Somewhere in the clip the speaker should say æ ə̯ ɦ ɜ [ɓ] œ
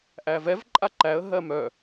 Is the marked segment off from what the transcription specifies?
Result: yes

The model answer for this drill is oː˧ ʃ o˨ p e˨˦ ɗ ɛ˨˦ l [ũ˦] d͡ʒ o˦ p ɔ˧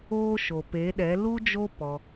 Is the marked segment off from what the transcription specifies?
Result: yes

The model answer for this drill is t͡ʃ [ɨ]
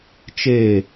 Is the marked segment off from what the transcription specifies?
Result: yes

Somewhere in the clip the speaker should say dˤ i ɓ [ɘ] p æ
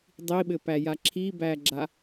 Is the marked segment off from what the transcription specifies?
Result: no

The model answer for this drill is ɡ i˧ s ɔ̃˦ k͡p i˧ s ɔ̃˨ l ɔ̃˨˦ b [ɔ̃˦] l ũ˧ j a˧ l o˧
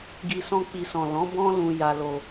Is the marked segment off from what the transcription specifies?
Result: no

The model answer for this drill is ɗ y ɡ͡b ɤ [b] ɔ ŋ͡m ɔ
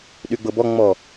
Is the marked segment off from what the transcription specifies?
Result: no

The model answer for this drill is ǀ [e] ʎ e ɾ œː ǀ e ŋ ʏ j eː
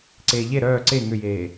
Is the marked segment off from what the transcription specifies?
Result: yes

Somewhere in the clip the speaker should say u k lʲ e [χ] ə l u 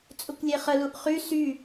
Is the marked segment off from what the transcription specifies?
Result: no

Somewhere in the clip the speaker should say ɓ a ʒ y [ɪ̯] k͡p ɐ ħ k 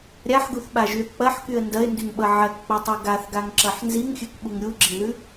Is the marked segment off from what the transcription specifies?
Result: yes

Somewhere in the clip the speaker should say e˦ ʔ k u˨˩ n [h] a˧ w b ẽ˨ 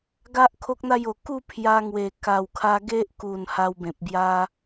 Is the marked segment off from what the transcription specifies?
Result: no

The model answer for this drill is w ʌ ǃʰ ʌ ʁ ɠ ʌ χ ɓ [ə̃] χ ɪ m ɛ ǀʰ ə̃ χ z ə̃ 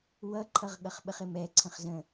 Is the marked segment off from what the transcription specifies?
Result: yes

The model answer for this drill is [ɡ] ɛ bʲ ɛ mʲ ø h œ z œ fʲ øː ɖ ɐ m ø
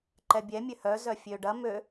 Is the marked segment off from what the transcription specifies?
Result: yes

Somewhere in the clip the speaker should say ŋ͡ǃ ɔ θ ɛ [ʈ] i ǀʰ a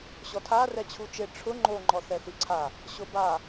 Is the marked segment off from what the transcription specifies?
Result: yes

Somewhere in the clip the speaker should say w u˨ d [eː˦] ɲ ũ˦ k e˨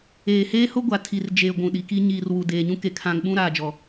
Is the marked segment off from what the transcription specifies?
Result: yes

